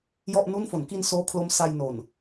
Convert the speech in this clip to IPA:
j ɔ˥˩ ʔ n u˥˩ n f o˩˦ n k i˧ n s oː˦˥ kʰ l o˦˥ m s a˧ j n o˨˩ n

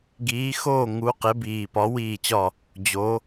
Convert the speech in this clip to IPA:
ɡ iː˨˦ x oː˥˨ ŋ u˨˦ q e˨˦ b iː˨˩ p ɒ˨˦ w iː˥˨ t͡ɕ ɒ˥˨ | d͡ʑ o˨˦

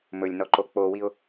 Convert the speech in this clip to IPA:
m ɵ lʲ n ɔ ǃ o k͡p o w i ʊ̯

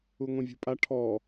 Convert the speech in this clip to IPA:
u ŋʷ ĩ vʲ ṳ pʼ a ʈʰ ɔ

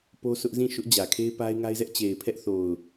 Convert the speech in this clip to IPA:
p o˦ sʰ ʊ˦ ʔ z ĩ˦˨ ʃ ʊ˦ ʔ d͡ʑ ä˨ kʰ e˦ ɪ̯ p a˦ ɪ̯ ŋ a˦ ɪ̯ z ɛ˦ ʔ t͡ɕ e˨ ɪ̯ pʰ ɛ˦ ʔ θ o˨ ʊ̯

